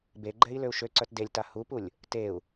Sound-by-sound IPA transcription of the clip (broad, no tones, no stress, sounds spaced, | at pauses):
b e ɡ͡ǃ ɛ i̯ l ø u̯ ʃ ø ǀ œ t d e lʲ t a h u p u lʲ | t e u̯